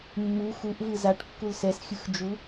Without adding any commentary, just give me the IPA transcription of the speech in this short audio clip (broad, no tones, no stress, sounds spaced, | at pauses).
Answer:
mː u x u ʔ v ɯ z a ʈ kː u l s ɛ s xʲ ɯ x d͡ʒ u